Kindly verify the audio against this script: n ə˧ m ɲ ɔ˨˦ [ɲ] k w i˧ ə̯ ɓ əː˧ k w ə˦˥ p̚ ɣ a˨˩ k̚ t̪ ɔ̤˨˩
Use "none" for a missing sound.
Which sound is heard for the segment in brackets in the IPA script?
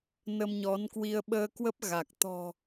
n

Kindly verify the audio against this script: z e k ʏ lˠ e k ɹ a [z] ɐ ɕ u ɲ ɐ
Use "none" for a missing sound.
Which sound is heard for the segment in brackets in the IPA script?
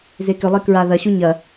ð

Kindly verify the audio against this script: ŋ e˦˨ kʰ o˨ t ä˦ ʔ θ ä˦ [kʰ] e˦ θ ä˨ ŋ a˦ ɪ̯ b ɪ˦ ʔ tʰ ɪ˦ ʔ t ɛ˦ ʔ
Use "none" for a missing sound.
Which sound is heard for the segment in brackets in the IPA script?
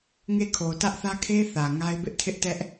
kʰ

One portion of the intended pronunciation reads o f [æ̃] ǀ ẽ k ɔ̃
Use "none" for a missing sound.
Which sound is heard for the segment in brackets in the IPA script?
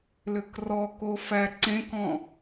æ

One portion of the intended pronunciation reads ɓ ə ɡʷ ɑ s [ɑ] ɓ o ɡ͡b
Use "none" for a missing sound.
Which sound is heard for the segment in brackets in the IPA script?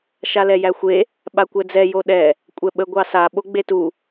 a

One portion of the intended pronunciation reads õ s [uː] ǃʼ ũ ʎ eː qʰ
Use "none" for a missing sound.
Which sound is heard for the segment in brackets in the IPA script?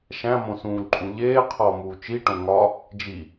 ũː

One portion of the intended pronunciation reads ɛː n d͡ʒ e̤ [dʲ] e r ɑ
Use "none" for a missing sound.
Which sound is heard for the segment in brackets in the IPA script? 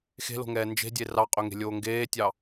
dʲ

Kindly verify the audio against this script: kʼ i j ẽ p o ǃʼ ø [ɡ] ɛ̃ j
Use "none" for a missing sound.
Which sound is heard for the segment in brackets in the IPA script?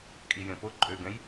ɡ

